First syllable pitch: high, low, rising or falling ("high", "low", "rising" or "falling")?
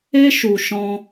high